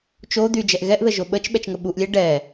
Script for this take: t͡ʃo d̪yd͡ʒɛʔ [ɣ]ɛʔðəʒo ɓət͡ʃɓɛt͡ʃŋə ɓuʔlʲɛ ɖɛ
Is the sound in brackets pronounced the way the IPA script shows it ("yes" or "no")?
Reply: yes